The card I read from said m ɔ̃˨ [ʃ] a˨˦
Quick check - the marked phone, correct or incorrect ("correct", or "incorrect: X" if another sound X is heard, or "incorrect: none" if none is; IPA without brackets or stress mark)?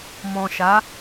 correct